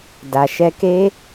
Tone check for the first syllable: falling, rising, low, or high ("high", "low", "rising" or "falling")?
low